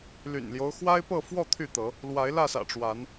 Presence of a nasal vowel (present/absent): absent